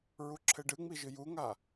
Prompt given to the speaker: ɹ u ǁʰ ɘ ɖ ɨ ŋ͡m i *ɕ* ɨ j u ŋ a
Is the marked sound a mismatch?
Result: yes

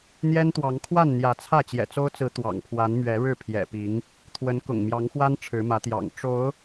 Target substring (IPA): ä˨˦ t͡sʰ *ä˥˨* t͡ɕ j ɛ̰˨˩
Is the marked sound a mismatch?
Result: no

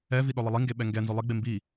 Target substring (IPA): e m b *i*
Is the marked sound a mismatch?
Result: no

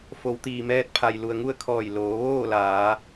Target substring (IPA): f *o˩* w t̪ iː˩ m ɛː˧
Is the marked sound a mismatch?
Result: yes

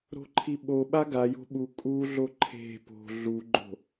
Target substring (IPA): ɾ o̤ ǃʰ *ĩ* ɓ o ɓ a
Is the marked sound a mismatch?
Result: yes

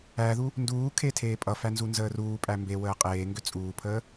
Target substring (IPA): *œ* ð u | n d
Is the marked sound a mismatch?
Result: yes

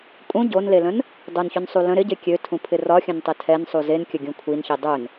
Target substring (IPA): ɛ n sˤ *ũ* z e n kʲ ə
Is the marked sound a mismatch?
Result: yes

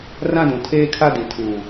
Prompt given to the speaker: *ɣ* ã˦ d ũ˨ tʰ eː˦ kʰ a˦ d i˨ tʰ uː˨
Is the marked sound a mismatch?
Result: yes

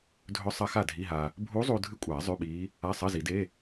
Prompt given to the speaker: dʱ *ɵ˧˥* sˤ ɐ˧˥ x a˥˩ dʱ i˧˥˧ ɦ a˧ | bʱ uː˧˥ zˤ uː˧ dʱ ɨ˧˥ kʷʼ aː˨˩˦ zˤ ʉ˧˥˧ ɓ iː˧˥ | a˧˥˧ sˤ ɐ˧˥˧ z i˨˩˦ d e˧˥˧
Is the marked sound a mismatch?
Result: no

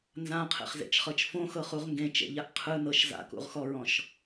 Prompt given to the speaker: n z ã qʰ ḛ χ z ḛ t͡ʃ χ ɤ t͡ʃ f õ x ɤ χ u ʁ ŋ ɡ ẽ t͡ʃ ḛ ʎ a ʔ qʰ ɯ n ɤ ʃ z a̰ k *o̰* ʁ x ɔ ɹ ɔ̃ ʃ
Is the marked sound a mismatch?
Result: yes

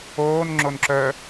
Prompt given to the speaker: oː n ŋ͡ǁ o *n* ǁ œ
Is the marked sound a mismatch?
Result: no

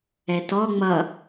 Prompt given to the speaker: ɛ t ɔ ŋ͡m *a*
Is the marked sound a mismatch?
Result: yes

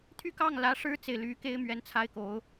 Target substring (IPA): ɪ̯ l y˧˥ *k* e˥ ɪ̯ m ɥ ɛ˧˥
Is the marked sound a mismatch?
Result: no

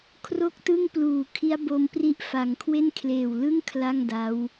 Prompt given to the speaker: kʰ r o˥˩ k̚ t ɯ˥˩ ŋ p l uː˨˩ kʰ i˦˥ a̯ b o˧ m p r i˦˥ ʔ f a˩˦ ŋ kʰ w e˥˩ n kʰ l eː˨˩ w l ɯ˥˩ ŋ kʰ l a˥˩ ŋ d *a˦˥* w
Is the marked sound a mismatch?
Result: no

